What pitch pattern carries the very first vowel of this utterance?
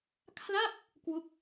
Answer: falling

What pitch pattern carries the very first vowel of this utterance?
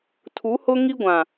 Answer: rising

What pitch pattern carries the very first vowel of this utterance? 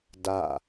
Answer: falling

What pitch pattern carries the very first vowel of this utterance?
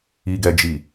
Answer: low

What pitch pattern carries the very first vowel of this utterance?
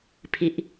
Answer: low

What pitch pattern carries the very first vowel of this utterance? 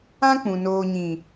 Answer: high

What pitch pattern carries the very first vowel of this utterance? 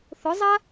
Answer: rising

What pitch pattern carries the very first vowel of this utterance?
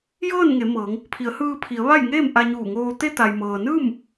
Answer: falling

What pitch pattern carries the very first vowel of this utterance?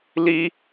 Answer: high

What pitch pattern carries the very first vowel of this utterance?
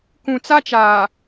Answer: low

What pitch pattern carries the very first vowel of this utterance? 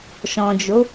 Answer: low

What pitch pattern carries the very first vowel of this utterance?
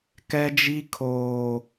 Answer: high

